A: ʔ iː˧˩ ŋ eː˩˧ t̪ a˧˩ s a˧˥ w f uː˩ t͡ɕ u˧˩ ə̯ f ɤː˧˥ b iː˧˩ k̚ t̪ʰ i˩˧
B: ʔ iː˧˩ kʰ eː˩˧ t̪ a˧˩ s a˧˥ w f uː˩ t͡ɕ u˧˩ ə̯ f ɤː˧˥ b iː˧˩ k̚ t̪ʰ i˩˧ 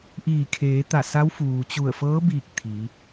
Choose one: B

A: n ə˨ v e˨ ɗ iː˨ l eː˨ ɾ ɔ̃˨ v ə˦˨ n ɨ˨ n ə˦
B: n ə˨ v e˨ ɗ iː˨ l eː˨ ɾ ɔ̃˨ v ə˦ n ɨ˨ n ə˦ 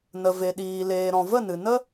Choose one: A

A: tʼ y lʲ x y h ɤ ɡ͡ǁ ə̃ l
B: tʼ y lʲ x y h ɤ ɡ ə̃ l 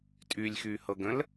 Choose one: B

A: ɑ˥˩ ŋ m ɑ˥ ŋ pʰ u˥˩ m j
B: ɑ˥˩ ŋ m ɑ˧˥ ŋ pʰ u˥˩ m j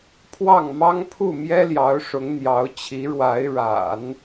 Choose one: A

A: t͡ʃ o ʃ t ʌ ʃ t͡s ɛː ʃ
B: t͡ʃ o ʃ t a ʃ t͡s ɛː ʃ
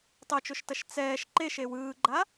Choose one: A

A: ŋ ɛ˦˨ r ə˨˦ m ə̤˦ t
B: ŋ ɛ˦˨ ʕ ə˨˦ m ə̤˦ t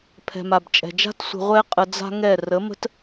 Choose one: A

